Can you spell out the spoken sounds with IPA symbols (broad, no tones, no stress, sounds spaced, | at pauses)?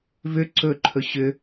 v ʏ ǀ ɵ ǃʰ ɵ ɕ ʏ